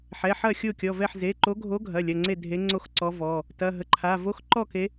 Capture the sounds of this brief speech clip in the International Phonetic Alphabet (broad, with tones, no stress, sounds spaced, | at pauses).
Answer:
ħ ɛ˩˧˩ ħ ɐ˥˨ xʲ o˥˨ kʲ ɔ˩˧˩ v ɛ˥˨ ħ z e˩˧˩ ǃ o˧˥ ɡʱ o˧˥ ɡʱ ɐ˩˧˩ lʲ ɐ˩˧˩ ŋ͡ǀ e˥˨ dʱ e˧˥ ŋ͡ǀ o˥˨ x ǀ ɔ˧˥ v ɔ˩˧˩ | t ɐ˩˧˩ ɦ ə˩˧˩ ǃʰ a˩˧˩ v o˧˥ x ǃ ɔ˥˨ k e˧˥